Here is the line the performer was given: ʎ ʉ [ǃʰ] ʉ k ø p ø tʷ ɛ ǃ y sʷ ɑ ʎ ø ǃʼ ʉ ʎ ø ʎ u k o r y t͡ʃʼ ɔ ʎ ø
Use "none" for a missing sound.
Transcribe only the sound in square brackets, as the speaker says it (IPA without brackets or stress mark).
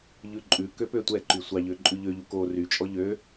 ǃʼ